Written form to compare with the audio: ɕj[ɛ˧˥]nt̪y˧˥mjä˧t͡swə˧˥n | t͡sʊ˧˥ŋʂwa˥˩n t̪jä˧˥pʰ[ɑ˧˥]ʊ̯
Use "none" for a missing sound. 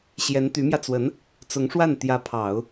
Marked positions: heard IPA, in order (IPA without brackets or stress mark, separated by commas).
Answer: ɛ˧˥, ɑ˨˩˦